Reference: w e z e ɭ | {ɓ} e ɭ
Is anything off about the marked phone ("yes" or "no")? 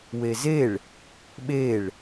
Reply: no